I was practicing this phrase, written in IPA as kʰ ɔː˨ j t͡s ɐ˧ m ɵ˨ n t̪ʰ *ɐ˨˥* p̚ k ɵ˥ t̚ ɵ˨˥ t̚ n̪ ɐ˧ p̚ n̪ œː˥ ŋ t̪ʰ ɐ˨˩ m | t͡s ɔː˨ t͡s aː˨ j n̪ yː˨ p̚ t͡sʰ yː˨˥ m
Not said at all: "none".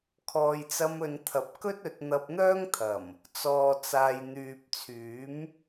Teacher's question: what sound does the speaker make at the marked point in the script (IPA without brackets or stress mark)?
ɐ˨˥